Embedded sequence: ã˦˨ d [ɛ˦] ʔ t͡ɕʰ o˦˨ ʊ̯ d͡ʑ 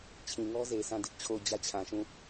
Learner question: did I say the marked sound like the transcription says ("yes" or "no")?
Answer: no